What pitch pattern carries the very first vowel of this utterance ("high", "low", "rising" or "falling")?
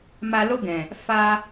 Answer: low